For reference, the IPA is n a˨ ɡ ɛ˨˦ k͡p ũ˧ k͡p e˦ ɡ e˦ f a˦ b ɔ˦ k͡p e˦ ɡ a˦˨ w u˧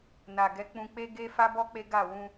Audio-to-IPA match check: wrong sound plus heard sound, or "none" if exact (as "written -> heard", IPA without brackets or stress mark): u˧ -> ũ˧